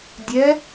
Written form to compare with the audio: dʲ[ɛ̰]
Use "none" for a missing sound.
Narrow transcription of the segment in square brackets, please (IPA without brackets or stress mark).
ɛ